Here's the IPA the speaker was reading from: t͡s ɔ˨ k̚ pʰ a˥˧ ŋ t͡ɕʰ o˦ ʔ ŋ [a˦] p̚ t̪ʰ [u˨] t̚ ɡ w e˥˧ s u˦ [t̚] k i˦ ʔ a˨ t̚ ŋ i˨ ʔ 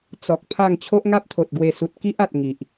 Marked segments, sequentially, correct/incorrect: correct, incorrect: o˨, correct

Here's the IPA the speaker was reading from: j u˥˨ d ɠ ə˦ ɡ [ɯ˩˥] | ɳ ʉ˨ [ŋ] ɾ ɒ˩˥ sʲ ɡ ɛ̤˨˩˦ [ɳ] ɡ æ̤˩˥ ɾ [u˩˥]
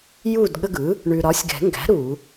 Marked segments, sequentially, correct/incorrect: correct, incorrect: none, incorrect: ŋ, incorrect: u˨˩˦

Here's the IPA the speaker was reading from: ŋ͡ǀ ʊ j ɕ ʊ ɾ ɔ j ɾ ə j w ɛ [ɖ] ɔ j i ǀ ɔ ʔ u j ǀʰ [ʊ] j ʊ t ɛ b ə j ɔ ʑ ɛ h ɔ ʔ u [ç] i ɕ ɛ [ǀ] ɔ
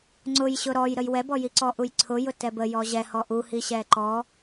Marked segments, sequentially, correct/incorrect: incorrect: b, correct, incorrect: h, incorrect: ǃ

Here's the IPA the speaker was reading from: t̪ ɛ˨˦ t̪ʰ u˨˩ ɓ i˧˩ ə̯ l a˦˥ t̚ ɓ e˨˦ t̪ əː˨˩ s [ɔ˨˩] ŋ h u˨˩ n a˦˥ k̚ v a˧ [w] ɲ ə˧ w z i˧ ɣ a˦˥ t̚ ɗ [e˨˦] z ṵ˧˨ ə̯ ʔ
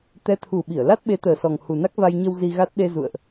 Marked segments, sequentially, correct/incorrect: correct, incorrect: j, incorrect: e˧

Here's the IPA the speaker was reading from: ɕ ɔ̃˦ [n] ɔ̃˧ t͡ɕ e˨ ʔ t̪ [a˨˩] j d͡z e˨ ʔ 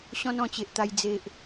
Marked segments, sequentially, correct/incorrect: correct, incorrect: a˧

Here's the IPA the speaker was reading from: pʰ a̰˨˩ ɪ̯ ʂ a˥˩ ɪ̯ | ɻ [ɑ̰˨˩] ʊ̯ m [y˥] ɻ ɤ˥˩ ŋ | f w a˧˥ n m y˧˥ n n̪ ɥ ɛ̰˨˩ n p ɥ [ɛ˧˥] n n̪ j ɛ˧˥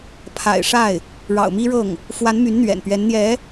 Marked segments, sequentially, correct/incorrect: correct, incorrect: i˥, correct

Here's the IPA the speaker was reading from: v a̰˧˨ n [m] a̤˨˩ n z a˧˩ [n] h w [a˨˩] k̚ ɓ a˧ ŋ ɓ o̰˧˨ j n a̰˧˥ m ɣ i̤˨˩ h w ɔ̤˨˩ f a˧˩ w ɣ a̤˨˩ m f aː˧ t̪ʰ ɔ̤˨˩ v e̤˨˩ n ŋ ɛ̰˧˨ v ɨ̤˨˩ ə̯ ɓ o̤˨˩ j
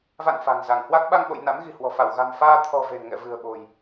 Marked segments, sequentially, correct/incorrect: incorrect: f, incorrect: ŋ, incorrect: a˦˥

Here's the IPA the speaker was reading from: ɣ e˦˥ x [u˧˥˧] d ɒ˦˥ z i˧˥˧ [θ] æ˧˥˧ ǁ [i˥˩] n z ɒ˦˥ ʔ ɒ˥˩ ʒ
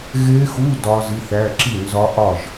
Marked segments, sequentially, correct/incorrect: correct, correct, correct

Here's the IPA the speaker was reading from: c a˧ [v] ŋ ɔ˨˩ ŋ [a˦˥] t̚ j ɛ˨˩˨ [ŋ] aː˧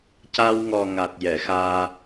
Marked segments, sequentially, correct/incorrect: incorrect: w, incorrect: a˨˩, incorrect: x

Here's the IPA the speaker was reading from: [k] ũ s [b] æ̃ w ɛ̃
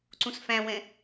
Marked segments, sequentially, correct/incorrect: incorrect: ǀ, incorrect: f

